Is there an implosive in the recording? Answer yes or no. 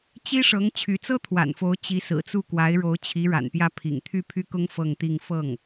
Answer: no